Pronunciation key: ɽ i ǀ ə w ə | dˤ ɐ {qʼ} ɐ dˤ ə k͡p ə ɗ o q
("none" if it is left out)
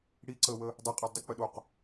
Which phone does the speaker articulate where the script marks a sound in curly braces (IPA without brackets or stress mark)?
qʼ